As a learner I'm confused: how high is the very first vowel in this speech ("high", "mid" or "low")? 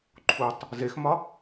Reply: high